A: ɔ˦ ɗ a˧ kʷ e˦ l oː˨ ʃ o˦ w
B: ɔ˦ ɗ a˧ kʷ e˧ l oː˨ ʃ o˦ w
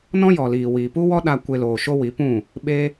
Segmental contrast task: B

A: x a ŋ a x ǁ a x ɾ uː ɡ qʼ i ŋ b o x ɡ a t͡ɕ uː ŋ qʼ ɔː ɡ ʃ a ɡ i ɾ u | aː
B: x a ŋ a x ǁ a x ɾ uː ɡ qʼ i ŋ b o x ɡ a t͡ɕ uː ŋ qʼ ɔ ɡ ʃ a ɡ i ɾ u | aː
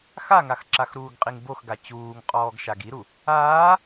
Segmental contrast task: A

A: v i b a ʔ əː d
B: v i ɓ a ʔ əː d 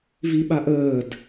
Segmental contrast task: B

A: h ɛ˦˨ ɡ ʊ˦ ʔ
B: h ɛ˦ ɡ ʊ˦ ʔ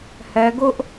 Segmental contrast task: B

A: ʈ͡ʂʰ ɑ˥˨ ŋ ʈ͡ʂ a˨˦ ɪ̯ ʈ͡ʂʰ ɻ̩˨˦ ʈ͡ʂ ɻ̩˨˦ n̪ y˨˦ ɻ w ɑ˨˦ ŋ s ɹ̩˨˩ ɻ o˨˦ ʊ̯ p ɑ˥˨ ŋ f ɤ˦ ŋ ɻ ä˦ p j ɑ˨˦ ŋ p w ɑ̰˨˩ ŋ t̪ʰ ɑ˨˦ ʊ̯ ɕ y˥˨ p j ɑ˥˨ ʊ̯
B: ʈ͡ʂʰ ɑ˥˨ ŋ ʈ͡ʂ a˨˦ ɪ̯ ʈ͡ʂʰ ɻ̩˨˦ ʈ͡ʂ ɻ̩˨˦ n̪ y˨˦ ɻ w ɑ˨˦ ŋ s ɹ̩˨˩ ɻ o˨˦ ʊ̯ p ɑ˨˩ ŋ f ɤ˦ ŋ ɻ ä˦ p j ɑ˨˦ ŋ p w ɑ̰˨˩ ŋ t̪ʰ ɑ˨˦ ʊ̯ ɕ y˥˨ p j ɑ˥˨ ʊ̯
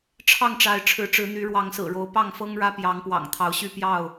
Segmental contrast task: A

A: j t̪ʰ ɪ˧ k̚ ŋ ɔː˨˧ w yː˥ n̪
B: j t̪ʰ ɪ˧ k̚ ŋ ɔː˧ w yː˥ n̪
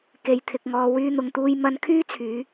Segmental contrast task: B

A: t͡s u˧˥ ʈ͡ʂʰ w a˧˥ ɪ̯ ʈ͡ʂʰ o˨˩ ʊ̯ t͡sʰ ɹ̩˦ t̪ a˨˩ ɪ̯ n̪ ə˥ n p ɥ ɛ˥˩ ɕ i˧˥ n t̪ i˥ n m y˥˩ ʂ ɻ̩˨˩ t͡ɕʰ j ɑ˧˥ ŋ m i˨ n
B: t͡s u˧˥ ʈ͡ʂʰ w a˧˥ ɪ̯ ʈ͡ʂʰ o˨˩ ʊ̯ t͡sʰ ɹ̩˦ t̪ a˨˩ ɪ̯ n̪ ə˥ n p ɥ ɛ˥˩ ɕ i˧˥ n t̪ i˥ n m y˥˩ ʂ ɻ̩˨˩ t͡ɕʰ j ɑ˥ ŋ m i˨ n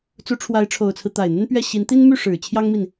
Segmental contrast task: B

